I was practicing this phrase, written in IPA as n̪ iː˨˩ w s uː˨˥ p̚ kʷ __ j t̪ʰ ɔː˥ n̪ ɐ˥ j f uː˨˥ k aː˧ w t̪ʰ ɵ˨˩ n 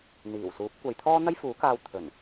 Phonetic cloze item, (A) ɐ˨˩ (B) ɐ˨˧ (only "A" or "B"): B